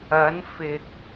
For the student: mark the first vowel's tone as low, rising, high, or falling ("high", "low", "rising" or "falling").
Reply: rising